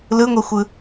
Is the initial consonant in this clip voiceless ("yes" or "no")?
no